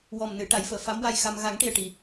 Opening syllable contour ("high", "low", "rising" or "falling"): low